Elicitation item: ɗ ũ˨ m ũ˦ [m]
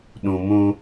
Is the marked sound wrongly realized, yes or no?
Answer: yes